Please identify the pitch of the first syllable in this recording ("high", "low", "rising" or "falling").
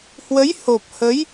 rising